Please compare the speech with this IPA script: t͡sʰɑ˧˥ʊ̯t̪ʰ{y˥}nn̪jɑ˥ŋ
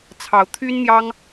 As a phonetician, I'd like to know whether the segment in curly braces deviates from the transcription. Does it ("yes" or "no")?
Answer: no